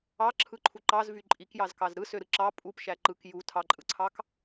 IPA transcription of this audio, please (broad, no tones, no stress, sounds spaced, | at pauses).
ɑ ǁʰ ɯ ǃʰ u ǃ ɑ z v y ǃʼ i k j ɑ z k ɑ z ɾ ɯ s ø ɾ ɯ ǁ ɑ pʼ u p ʃ æ ǃ ɯ k j u tʰ ɑ ǃʼ ɯ ǀʰ ɑ k